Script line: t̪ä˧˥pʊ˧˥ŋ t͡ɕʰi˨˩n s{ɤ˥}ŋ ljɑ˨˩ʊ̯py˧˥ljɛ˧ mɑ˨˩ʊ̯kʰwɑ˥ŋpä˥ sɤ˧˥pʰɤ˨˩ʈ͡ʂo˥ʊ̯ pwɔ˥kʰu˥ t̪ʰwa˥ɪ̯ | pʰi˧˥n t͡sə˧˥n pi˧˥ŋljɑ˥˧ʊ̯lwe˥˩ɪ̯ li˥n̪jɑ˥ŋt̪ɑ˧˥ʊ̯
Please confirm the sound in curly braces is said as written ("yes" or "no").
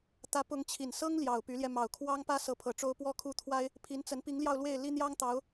yes